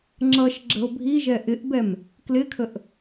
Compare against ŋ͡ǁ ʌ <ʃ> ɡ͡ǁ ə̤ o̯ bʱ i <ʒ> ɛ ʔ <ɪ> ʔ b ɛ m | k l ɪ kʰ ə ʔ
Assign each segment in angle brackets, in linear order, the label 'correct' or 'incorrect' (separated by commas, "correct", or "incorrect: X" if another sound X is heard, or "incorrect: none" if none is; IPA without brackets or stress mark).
correct, correct, correct